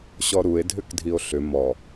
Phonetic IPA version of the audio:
ɕɔɾue̯dʱʏkdʱio̯ ɬʏ mɔ

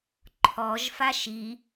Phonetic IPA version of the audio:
ǃʰɔʒ faʃi

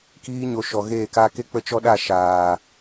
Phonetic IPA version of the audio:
kiː˧ɲo˨ ʃɔ˨ɣeː˦˨ kaː˧ke˦ k͡pə˦ t͡ʃɔ˦ɗa˦˨ʃaː˨

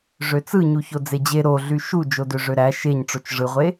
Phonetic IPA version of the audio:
ʐøt͡sɯɲuço d͡zed͡ʑe ɾo ɮyʃu d͡ʒodøʐøɾæ ʃeɲʈ͡ʂot͡ʃ ʐɯʁʷe

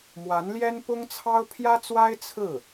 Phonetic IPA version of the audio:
mwa˧˥nljɛ˥npʊ˥ŋt͡sʰɑ˥ʊ̯ pʰjä˥t͡swa˥ɪ̯ t͡sʰɹ̩˥˩

